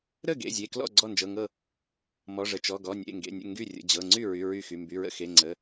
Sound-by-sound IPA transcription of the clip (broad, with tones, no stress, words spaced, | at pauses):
ɾə˥˩ɡḛ˩˧˩ zʲe˩˧˩klɔ̰˥˩ ɡ͡ǀɔ˥˩nd͡ʒɤ˩˧˩ŋɤ˥˩ | mɔ˩˧˩ʐə˩˧˩ t͡ʃɔ˩˧˩ɡɔ˩˧˩ nʲḛ˩˧˩ŋɡḛ˩˧˩nʲə̰˥˩ ŋɡy˥˩rʲə̰˩˧˩d͡ʑɤ˩˧˩ ŋ͡ǀy˥˩ɹy˩˧˩ ɹy˥˩xy˩˧˩ mby˩˧˩ɹə̰˥˩ xe˩˧˩ŋ͡ǀə˩˧˩